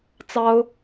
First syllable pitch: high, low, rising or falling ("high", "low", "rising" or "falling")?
high